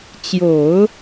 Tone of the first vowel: low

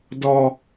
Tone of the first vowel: low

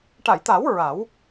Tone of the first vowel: low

